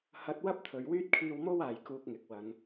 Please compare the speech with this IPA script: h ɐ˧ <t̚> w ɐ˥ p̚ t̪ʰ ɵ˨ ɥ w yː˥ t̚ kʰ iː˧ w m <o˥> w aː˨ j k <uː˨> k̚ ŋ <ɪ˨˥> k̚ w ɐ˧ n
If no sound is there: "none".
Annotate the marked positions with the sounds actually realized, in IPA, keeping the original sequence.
t̚, o˥, uː˧, ɪ˨

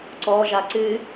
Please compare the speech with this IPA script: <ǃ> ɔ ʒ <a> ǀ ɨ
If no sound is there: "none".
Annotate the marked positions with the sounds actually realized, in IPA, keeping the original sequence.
ǀ, a

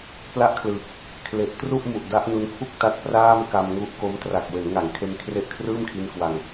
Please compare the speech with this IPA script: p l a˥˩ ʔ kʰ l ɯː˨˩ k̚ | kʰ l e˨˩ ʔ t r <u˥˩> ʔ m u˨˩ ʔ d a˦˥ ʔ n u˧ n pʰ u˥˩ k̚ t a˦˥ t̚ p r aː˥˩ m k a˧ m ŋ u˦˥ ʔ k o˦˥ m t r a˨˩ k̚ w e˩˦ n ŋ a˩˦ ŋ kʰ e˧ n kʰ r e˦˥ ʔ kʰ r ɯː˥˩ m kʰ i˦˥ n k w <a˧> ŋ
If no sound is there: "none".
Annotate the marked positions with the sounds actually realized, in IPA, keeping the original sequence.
u˥˩, a˧

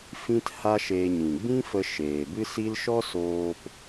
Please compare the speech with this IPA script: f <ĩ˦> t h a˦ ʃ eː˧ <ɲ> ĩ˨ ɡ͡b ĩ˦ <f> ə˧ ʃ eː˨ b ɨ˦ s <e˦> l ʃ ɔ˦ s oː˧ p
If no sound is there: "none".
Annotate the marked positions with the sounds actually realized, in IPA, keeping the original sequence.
ĩ˦, ɲ, f, i˦

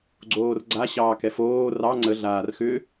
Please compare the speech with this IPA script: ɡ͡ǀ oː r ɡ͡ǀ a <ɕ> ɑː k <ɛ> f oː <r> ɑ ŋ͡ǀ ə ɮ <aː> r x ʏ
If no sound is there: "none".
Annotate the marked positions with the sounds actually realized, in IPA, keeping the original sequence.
ɕ, ɛ, r, aː

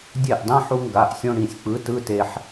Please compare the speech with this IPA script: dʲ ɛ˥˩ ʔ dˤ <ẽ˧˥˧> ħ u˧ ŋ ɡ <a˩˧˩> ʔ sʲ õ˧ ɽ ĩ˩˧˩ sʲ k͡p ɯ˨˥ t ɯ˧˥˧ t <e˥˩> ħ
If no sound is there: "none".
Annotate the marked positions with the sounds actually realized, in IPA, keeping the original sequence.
ẽ˧˥˧, a˩˧˩, e˧

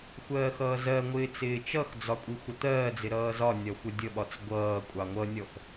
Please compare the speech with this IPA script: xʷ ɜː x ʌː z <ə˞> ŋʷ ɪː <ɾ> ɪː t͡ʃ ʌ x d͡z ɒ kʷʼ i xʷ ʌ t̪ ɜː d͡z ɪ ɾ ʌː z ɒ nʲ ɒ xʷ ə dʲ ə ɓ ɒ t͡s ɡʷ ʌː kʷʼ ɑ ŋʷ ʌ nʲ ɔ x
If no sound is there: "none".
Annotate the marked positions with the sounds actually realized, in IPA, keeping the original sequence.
ɜ, t͡s

